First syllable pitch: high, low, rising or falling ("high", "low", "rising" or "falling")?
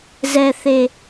low